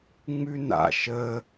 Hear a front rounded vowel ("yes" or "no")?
no